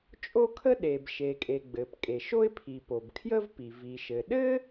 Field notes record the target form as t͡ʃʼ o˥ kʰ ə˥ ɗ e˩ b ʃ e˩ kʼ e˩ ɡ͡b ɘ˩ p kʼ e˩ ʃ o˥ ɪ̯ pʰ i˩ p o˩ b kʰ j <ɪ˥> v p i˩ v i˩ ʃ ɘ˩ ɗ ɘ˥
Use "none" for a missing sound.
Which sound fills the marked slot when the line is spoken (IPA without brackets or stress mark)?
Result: ə˥